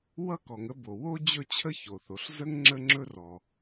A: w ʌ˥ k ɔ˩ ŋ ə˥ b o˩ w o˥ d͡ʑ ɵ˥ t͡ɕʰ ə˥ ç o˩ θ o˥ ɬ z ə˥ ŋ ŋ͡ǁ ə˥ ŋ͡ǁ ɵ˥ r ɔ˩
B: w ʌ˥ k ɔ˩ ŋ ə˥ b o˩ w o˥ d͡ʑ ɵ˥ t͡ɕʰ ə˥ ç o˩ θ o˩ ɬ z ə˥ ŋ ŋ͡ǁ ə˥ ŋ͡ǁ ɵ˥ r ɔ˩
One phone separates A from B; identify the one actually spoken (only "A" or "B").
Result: B